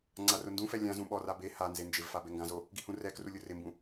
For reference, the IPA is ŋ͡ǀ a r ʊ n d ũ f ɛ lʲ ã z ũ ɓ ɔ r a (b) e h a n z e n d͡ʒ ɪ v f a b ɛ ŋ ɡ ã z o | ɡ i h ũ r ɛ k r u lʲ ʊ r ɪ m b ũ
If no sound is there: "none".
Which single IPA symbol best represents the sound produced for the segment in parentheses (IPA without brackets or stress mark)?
b